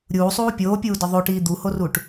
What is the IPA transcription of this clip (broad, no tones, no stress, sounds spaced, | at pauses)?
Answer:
ɾʲ uː sˤ uː pʲ oː pʲ uː d ɒ ðˤ o ʈ iː d̪ u h o r u ʈ